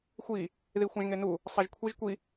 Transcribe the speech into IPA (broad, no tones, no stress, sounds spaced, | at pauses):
xʷ i | ð i xʷ ã ʒ ŋ e n u | sˤ a ʒ kʷʰ i ʒ kʷ i